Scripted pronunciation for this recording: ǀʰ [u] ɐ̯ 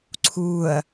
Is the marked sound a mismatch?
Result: yes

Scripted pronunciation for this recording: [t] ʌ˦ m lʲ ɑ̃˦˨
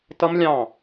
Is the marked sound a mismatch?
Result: no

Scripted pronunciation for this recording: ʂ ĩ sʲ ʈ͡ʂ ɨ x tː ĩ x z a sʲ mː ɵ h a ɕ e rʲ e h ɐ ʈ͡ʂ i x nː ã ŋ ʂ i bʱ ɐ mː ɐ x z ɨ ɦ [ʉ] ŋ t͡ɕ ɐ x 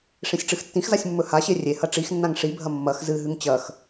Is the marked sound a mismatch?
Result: no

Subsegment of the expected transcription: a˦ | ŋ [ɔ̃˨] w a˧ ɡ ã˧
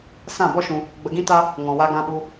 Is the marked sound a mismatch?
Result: no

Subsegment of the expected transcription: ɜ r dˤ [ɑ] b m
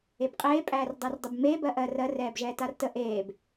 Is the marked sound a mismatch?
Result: yes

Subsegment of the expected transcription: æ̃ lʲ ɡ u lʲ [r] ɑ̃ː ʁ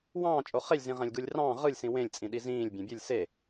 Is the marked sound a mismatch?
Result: no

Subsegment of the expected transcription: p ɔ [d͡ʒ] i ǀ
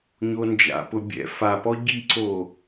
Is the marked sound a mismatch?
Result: yes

